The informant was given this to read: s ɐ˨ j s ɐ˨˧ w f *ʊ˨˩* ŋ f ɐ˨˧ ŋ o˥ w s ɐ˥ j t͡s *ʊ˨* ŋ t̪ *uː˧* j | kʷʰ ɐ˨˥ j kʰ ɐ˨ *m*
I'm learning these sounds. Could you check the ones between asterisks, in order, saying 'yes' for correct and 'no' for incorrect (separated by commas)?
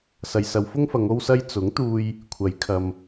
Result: no, no, yes, yes